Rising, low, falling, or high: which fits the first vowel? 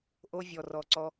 high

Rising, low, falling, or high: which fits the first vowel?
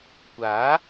rising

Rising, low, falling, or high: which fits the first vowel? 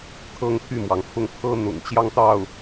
falling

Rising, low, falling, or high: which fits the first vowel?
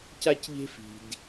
high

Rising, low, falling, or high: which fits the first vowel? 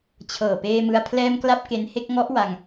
low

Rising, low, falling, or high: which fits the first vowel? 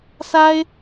high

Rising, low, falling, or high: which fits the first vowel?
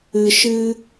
low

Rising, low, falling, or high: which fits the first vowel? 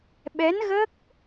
rising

